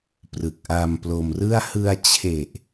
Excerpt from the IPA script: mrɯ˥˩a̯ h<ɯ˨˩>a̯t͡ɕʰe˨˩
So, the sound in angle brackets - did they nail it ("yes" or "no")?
no